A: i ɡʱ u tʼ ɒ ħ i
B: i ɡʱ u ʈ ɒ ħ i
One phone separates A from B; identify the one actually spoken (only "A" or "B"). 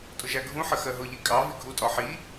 A